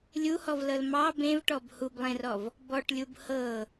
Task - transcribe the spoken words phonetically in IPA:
lʲ u h ɔ v l ɤ l m ɑ b ẽ v ʈ ɔ b h u b lˠ ẽ r ɔ v | b ɔ ʈ lʲ u b h ɤ

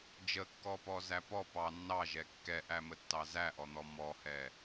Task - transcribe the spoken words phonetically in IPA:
d͡ʒ ə kː ɔ p ɔ z æ p ɔ p ɑ nː ɑ ʒ ɛ kː ɛ ʔ æ m ə tː ɑ z æ ʔ ɔ n̪ ɔ m ɔ h ɛ

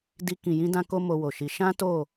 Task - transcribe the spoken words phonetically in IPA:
d i˧ k ĩ˨ j ĩ˧ d ã˦ k o˦ m o˧ w o˨ ʃ i˧ ʃ ã˦ t o˦˨

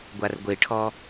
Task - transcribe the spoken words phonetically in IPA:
ɡʷ a r ɡʷ e ʈʰ ɔ

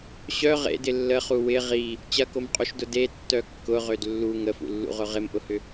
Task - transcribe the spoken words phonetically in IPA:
ɕ œ ʁ ḛ d ɪ lː ə χ u w ɪ ʁ i | t͡ɕ ɐ k o m qʼ u ʃ d ʊ d e tː œ kː ʊ ʁ ø d lː u ŋ ə f ṵ lː ṵ ʁ ʊ ʁ ɪ m ʔ ʊ h ʏ

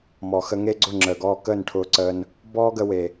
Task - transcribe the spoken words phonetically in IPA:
m ɔ˨ x ə˧ ŋ e˦ ɡ͡ǀ ʊ˦˨ ŋ͡ǁ əː˨ ɡ ɔː˧ k əː˦˨ n ʈʰ ʊː˧ ǀ əː˧ n | b ɔː˦ ɡ ə˧ w e˨

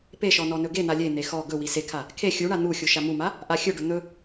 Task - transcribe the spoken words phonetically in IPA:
p e ʃ ɔ n ɔ n ɵ ɡ e n̪ a lʲ e n̪ e x ɔ ɡ ɵ w i s e kʰ a | kʰ e xʲ u ɳ a n̪ u xʲ u ʃ a m u m a | ʔ a xʲ ɵ ɖ ɵ n̪ ɵ

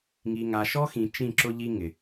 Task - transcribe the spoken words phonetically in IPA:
ŋ i˨ ŋ a˨ ʃ ɔ˦ x ĩ˨ t͡ʃ ĩ˦˨ ǁ ʊ˦ ʎ i˦ ŋ ɪ˨

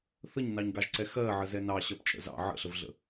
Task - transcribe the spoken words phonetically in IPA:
θ ə ɲ n ɑ ɲ ɡ ɑ ʒ ǀ ɛ x ɜ ʕ ə z ɛ n ɑ ɕ ɜ p t͡ʃʼ ə̰ z ɑ̰ ʕ ə̰ ɬ ə v ɮ ə̰

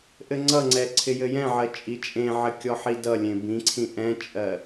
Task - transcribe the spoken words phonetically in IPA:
ʔ ɘ ŋ͡ǀ ʌ ŋ͡ǀ ɛ ǀʰ ɪ j ɘ j ɛ̃ ʕ ɜ t͡ʃʼ i t͡ʃʼ ẽ ʕ ɘ kʲ ɔ ħ i d ʌ lʲ ẽ b ĩ ǀʰ ĩ ʔ ɛ̃ t͡ʃʼ ɜ

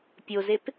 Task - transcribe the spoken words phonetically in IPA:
pʲ o z e p

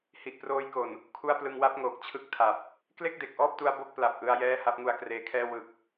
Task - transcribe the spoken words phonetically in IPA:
h i˨˩ ʔ p r oː˧ j k o˨˩ n | kʰ u˥˩ a̯ p l ɯ˧ ŋ w a˦˥ p̚ ŋ oː˨˩ k̚ t͡ɕʰ ɯ˥˩ k̚ tʰ a˨˩ p̚ | k l e˥˩ k̚ d e˨˩ k̚ ʔ ɔː˥˩ p̚ t u˧ a̯ b o˥˩ k̚ p l a˨˩ p̚ ʔ ɯ˧ a̯ j ɛː˥˩ h a˦˥ p̚ ŋ u˧ a̯ k r eː˧ kʰ ɛː˥˩ w ɯ˨˩ k̚

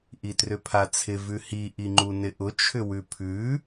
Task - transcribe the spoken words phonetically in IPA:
ʔ i t r ʏ pʰ a t͡sʰ ɪ v ʉ h i ʔ i ŋ͡ǃ u n ɪ ʔ ʊ t͡ʃʰ ʏ w ʉ pʰ ʉ

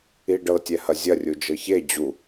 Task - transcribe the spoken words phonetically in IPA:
i ɖ ɤ tʲ ɛ h ɐ zʲ ɐ rʲ u d͡ʒ ɤ ç e d͡ʑ u

